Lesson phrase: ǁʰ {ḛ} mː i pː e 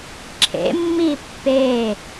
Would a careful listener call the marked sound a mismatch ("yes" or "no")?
no